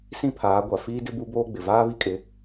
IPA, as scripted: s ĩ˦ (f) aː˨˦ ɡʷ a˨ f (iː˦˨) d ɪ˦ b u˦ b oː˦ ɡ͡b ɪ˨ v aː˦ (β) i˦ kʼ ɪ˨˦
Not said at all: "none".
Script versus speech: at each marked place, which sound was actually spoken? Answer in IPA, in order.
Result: pʰ, iː˦, β

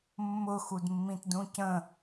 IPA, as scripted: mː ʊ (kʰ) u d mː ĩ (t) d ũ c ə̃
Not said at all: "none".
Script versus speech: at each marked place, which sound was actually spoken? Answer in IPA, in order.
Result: x, t

